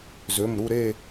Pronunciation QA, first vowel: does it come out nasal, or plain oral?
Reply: oral